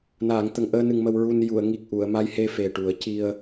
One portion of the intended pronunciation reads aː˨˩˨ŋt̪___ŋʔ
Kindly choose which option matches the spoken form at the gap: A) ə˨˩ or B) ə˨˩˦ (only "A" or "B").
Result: A